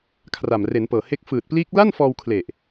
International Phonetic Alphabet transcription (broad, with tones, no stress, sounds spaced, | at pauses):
kʰ r a˨˩ m r e˩˦ n p ɤː˨˩ h e˦˥ k̚ f ɯː˨˩ t̚ p l iː˦˥ k̚ l a˥˩ n f ɔː˧ w kʰ l e˨˩ ʔ